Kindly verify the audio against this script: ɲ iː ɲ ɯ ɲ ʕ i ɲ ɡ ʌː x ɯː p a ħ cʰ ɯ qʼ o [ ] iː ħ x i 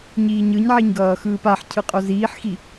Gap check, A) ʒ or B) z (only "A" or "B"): B